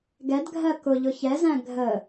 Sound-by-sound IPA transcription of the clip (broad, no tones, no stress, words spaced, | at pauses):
ɡɛdɡʱɜ kʊʎʊ çɛzæ̃ ɡʱə